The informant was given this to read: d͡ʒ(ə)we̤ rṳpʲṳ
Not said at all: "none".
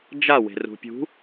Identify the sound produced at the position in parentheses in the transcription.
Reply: a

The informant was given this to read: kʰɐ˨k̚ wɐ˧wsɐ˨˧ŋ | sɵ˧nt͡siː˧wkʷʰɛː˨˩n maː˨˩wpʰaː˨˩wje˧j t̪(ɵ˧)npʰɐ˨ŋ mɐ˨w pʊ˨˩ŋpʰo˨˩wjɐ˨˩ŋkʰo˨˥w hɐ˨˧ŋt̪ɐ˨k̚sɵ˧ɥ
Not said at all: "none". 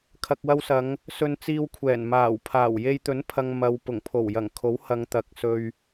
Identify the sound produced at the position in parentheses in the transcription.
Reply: ɵ˨˥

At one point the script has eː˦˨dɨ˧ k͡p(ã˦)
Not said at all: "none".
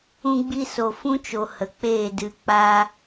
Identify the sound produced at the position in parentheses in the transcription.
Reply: a˦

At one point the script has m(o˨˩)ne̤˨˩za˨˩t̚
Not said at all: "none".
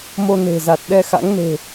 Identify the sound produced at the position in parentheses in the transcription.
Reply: o˧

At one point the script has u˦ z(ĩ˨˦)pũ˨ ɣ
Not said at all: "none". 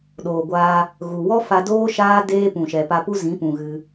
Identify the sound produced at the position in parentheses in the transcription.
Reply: ĩ˨˦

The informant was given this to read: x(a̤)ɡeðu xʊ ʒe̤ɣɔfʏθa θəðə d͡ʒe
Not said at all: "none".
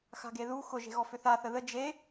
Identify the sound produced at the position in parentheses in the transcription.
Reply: a̤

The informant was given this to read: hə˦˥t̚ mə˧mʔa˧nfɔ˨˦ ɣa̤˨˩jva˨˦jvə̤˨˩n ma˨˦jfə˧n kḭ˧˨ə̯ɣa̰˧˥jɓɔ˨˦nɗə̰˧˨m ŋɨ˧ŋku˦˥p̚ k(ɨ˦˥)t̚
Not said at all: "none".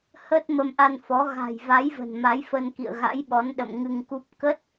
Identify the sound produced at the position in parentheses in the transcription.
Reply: ə˦˥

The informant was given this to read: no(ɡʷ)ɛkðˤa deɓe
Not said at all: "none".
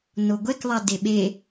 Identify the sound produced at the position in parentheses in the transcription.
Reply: ɡʷ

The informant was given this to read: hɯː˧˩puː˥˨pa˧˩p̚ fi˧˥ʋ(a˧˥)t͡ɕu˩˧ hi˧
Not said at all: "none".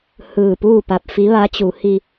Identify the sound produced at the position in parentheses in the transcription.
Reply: a˧˥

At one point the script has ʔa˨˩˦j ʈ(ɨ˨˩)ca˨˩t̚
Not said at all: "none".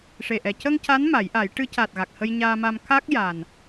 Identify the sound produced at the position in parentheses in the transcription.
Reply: ɨ˧˥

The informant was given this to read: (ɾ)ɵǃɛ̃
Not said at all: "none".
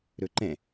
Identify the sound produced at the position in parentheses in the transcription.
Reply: ɾ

